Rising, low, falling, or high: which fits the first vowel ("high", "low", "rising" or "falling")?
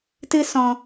high